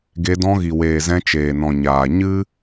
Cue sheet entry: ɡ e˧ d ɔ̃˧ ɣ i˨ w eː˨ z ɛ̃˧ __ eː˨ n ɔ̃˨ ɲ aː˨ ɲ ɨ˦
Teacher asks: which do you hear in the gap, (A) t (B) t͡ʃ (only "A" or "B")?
B